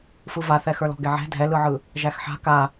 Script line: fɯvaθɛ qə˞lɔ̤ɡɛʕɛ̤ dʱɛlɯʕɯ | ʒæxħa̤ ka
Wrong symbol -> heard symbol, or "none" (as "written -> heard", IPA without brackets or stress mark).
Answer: q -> x